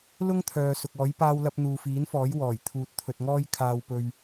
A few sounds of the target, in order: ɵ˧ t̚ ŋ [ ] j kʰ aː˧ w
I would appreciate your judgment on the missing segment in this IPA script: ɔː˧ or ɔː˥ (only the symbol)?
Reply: ɔː˥